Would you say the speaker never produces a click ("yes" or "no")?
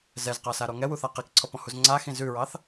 no